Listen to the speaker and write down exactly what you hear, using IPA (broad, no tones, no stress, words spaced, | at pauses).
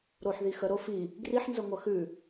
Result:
ɾoħði xəɾo fi | ɡriħnzə ŋʷɐxʉ